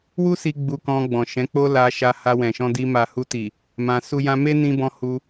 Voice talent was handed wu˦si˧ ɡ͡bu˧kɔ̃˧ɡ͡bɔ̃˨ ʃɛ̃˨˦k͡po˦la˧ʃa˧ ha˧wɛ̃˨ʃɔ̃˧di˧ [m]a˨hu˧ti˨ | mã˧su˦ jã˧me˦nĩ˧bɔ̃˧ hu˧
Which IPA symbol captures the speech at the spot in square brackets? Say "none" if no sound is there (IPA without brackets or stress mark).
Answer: m